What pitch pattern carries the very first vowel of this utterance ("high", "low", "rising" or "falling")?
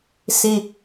high